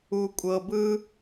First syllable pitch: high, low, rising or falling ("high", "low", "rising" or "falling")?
low